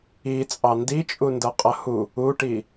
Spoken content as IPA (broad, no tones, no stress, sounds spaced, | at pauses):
i t͡sʼ ɑ n d i t͡ʃʼ u n d ʌ qʼ ʌ h u | u ʈ i